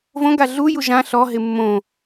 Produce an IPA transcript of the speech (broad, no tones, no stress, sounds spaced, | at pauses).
v õ ɡ a ɮ u j u ʒ ã ɬ ɔ ɦ ɪ mː õ